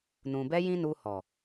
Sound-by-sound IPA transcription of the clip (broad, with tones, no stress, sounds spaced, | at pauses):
n ũ˨ b ɛ˧ j ĩ˦ n u˧ h ɔ˨